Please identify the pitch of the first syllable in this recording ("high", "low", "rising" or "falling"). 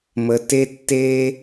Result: low